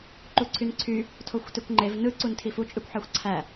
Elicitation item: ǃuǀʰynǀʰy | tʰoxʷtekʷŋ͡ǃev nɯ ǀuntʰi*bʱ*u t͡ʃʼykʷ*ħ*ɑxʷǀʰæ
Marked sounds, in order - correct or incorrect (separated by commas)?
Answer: incorrect, correct